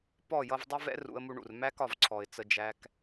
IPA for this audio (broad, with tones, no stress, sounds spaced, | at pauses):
p ɔ˦˨ j ʌ˧ v dˤ ʊ˦ v ɛ̰˦ r ṵ˧ ə̯ m u˧ ɳ ṵ˨ r m æ˦ k ɒ˨ v ǀʰ ɔ˨ ɪ̯ t͡s ə˧ d͡ʒ æ˧ k